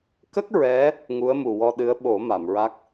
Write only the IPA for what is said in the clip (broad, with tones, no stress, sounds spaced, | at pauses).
k ə˦˥ k̚ ɹ ɛ˧˥ | ŋ u˧˥ ə̯ m u˨˩ w ɔ˧ ɗ ɨ˧˥ ə̯ ɓ o˨˩˦ m a˨˩˨ m ɹ a˦˥ k̚